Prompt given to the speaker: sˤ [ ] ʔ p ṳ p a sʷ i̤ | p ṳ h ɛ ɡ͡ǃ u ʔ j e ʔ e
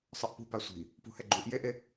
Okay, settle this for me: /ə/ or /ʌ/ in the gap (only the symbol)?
ʌ